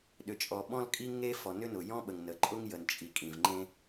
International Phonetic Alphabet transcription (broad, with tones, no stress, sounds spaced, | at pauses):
ɗ ʏ˩ t͡ʃʼ ɔ˩ ɓ ɔ̃˥ l kʼ i˥ ŋ e˥ f ɔ˩ n ʏ˥ n ʊ˩ j ɔ̃˥ ɓ ə˩ ŋ n ə˩ ǃʼ ʊ˥ ŋ j ə˩ n t͡ʃʼ i˩ kʼ ĩ˩ v ŋ͡ǃ ẽ˥